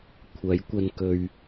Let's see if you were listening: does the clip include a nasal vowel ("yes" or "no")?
no